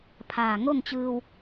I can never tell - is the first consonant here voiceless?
yes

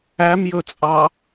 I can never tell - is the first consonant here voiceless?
no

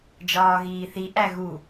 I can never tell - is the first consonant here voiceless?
no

